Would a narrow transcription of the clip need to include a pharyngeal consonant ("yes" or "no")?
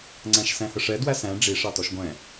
no